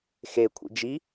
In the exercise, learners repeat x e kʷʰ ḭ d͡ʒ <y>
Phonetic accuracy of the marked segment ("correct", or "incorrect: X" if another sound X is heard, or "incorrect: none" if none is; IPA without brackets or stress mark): incorrect: i